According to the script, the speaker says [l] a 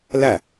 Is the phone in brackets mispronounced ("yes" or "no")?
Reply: no